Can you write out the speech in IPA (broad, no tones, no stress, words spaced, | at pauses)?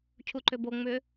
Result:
cʰuǃʏbo ŋ͡mʏ